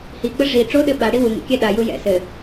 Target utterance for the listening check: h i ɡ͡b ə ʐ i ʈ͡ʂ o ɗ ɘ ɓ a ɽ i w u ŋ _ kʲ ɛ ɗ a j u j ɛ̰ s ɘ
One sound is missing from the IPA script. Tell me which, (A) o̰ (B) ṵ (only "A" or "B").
B